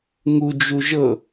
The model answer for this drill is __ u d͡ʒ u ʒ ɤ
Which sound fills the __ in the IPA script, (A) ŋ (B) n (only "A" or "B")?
A